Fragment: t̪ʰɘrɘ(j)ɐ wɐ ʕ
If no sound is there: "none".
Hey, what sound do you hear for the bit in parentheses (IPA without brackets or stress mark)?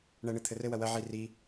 w